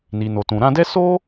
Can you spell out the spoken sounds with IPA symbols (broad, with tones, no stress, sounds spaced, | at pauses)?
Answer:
n i˨ n o˨ t ũ˨ ɾ ã˧ d ɛ˦ s o˦